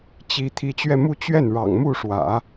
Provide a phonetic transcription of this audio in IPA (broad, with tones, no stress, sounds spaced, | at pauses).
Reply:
t͡ɕ i˧˥ t̪ʰ i˧˥ t͡ɕ ɥ ɛ˥˧ m u˥˧ t͡ɕ ɥ ɛ˥˩ n ɻ ɑ̰˨˩ ŋ m u˥˩ ʂ w ä̰˨˩˦